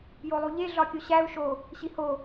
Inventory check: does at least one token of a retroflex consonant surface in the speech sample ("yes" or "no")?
no